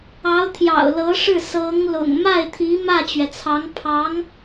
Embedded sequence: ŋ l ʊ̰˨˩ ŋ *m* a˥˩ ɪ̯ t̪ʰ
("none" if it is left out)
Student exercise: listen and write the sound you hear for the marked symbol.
m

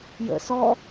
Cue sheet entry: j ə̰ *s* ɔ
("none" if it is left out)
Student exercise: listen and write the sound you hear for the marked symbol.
s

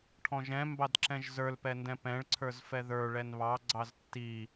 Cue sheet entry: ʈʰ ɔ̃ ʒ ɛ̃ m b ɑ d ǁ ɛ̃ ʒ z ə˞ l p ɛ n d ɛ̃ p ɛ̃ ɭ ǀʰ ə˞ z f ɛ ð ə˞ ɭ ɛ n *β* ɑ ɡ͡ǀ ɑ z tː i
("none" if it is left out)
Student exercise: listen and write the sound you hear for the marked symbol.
β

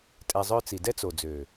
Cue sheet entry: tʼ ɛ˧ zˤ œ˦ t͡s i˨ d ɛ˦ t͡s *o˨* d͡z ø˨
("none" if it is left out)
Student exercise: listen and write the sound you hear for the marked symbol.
o˨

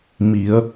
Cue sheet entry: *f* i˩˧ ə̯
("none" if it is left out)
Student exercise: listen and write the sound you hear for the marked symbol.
m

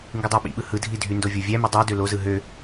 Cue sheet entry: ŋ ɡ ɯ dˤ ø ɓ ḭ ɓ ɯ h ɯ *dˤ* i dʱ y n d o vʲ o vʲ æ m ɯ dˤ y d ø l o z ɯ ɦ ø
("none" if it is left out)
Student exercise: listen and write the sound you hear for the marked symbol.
dʱ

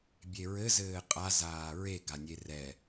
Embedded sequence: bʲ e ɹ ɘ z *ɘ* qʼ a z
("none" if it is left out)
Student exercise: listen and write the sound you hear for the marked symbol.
ɘː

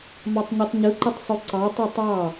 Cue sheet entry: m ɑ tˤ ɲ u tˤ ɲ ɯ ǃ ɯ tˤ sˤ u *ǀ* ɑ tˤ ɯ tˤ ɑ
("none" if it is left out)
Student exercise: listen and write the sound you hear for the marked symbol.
ǀ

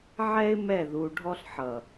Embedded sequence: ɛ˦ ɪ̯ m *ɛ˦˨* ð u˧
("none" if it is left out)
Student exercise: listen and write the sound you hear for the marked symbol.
ɛ˦˨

